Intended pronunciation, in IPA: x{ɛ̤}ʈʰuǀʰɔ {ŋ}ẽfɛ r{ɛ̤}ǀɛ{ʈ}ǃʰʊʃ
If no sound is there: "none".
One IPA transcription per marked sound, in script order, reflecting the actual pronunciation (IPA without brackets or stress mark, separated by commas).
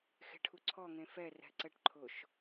e̤, ŋ, ɛ̤, ʈ